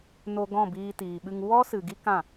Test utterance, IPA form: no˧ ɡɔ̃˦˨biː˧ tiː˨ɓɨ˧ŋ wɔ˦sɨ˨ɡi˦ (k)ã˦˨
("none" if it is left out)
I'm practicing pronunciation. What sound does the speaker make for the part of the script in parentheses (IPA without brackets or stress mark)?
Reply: k